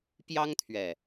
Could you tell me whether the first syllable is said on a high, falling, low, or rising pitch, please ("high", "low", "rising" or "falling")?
high